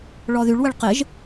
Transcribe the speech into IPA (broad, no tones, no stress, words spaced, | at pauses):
ɭɔðyɭ wəɭqɪʒ